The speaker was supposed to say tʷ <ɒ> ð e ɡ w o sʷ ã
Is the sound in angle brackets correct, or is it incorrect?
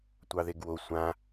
incorrect